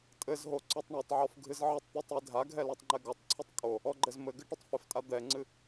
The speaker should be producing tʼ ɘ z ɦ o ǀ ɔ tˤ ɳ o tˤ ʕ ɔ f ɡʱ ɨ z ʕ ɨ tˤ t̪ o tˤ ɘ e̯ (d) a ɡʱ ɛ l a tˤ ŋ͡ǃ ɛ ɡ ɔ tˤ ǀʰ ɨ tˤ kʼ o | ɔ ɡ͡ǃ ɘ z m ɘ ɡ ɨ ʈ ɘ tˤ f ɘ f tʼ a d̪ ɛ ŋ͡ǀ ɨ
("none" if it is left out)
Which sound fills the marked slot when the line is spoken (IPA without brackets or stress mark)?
dʱ